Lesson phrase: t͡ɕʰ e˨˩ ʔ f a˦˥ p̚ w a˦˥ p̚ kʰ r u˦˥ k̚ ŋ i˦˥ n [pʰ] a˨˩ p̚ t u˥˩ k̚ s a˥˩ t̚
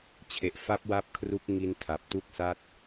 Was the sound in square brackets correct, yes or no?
no